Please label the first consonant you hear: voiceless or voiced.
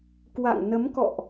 voiceless